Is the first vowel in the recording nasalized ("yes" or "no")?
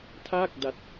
no